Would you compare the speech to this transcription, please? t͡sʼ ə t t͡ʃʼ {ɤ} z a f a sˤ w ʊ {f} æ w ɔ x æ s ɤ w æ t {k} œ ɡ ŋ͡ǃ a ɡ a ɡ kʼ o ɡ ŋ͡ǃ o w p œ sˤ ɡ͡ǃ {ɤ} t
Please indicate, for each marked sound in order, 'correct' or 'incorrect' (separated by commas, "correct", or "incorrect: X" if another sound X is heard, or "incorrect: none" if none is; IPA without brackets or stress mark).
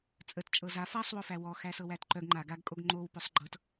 correct, correct, incorrect: ǃ, correct